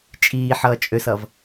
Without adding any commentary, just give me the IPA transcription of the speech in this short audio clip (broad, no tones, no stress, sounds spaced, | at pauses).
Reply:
t͡ʃʼ iː ħ ʌː t͡ʃʼ ø s ʌ v